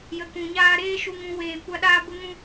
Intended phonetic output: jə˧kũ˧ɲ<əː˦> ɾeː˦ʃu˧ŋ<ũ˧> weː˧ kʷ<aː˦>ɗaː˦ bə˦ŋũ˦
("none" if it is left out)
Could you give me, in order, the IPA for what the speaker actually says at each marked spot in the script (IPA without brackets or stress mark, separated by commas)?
aː˦, ũ˧, a˦